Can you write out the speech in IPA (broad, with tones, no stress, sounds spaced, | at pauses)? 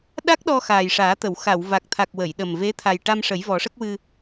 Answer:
ɗ a˦˥ k̚ ɗ ɔ˧ x aː˨˩ j ʂ aː˨˩˦ t̪ ə˨˩˨ w x a˨˩˨ w v a˨˩ k̚ t̪ʰ a˨˩ k̚ w ə˨˩˨ j ɗ ə˨˩ m v e˧˥ t̪ʰ a˨˩ j ʈ a˧ m ʂ ə˨˩˦ j v ɔ˨˩˦ ʂ ə˦˥ k̚ w ɨ˧